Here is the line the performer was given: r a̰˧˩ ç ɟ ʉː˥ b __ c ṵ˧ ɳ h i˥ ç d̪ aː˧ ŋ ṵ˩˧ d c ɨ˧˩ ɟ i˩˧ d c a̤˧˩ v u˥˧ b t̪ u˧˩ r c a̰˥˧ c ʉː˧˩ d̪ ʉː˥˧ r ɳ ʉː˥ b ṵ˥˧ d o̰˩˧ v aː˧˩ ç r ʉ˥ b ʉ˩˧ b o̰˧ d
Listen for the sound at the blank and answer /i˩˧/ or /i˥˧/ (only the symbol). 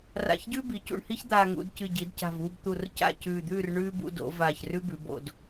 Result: i˩˧